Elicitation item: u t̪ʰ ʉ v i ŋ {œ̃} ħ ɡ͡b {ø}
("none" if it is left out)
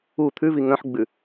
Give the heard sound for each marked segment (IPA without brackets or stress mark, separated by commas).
œ̃, ʉ